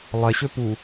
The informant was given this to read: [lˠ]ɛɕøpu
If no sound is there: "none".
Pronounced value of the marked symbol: lˠ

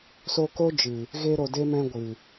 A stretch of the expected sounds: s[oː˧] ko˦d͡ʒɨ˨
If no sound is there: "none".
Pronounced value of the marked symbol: o˧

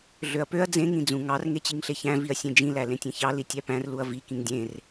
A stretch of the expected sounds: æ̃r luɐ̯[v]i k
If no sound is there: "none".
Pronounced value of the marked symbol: v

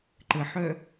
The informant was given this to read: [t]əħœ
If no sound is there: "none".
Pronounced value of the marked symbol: ǃ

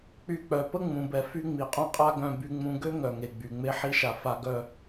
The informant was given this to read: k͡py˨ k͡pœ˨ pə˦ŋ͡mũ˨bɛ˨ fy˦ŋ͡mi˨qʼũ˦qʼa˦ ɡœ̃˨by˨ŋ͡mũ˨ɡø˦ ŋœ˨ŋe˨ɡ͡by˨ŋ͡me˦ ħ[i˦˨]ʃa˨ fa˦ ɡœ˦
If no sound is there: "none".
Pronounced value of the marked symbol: i˦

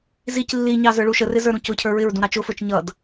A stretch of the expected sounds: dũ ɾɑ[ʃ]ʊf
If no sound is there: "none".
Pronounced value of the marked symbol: t͡ʃ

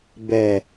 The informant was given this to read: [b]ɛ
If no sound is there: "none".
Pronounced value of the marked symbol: b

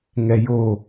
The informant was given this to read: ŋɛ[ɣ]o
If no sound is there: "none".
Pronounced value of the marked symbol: j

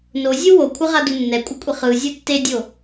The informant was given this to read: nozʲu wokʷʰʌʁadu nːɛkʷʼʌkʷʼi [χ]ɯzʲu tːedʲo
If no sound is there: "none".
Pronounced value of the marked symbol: χ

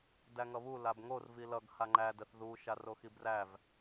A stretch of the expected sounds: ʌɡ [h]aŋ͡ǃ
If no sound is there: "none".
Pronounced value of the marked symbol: h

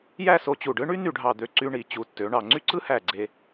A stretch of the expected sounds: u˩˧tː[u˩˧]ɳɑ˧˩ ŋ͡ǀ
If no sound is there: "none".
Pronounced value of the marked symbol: ø˩˧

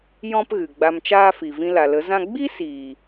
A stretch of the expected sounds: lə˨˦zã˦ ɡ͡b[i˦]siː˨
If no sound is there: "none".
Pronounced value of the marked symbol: i˦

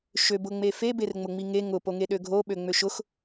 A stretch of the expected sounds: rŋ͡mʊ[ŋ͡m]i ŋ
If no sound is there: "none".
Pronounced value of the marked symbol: ŋ͡m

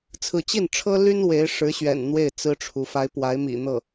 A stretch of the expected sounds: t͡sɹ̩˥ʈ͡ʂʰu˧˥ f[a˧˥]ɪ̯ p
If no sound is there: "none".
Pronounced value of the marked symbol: a˧˥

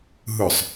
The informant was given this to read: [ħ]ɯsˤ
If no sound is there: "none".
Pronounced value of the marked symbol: ɦ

